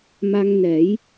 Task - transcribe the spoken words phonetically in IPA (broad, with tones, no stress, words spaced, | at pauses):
ma˧ŋnɛ˨˩˦j